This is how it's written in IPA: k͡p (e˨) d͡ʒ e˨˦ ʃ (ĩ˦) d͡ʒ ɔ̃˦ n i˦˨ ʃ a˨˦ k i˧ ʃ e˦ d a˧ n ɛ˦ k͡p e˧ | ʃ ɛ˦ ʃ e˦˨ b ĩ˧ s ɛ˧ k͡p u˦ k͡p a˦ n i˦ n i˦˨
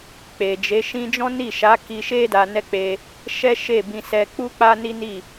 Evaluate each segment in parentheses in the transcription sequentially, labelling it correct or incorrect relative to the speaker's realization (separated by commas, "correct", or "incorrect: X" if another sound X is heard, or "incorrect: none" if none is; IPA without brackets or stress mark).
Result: correct, correct